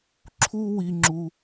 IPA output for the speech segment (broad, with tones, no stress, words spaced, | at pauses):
ǁʰu˦wi˧ŋ͡ǁu˧